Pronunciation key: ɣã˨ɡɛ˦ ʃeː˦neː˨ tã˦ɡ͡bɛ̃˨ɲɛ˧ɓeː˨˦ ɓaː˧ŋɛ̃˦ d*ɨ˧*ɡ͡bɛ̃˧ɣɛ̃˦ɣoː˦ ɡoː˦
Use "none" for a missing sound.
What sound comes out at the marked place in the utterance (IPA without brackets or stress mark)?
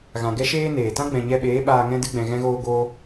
ɨ˦